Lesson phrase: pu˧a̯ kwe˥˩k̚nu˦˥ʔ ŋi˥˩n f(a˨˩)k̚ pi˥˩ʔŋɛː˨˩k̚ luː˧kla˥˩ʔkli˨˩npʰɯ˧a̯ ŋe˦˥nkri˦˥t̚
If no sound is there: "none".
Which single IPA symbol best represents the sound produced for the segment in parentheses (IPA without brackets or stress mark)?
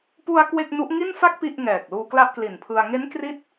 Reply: a˦˥